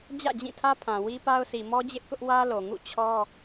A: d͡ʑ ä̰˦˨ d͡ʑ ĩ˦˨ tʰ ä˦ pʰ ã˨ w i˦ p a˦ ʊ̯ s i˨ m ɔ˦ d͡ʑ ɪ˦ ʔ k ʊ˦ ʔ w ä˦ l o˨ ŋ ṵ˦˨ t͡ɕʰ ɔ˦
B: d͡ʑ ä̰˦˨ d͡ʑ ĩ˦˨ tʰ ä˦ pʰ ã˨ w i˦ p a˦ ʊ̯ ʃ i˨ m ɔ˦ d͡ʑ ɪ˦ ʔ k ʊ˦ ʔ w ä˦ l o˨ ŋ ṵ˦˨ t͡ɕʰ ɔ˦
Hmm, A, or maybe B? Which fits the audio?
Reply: A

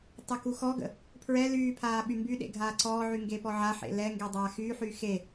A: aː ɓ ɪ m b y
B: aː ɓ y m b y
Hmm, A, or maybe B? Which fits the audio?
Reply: B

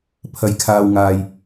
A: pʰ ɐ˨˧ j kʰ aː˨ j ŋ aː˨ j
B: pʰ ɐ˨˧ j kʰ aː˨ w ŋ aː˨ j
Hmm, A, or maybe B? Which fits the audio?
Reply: B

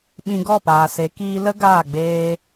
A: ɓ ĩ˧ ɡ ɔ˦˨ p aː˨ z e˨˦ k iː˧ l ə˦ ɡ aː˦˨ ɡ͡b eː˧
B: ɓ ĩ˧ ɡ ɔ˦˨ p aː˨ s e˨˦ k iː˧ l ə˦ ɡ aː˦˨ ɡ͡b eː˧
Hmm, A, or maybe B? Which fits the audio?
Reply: B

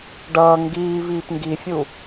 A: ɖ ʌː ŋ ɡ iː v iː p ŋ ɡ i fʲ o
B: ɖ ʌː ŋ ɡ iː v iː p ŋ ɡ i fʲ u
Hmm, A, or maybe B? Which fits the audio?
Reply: B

